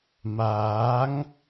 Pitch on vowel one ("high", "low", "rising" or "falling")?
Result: rising